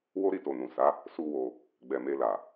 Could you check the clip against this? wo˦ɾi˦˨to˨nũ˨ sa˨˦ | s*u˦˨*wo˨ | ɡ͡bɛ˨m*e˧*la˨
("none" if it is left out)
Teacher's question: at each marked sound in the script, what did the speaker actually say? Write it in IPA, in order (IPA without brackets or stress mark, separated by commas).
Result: u˨, e˧